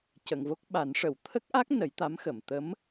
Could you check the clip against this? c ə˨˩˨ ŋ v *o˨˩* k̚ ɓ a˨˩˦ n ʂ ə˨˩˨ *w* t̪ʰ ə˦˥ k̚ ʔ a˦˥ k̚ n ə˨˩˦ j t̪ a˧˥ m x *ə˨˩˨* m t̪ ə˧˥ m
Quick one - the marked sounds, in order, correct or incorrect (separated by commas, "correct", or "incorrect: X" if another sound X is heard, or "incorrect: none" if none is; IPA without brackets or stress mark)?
incorrect: o˦˥, correct, correct